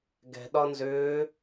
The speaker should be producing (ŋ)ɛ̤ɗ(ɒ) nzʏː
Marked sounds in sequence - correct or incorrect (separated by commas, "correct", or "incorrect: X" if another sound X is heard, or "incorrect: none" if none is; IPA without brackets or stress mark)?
incorrect: ɡ, correct